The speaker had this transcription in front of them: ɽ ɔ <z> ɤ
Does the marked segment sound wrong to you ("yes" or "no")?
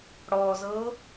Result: no